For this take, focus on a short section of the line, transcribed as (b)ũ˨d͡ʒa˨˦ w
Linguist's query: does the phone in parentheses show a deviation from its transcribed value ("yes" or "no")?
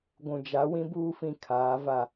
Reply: yes